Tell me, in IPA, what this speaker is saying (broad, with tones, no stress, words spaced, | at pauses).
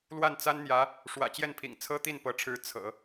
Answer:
lwa˥˩nt͡sa˥nn̪jä˧˥ | ʂwä̰˨˩t͡ɕjɛ˥˩npʰḭ˨˩ŋ t͡sʰɤ˥t̪i˥˩npɤ˧˥ʈ͡ʂʰɻ̩˧˥ t͡sʰɤ̰˨˩˦